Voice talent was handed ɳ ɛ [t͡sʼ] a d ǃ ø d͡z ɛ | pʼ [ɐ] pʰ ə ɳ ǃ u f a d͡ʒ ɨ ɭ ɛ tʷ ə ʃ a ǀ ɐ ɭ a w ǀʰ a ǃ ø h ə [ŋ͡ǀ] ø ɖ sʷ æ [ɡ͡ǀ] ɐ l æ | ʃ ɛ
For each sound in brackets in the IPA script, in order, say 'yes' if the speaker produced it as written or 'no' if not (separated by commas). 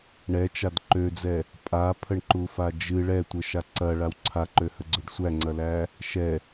no, no, no, no